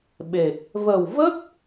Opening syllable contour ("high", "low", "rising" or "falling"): low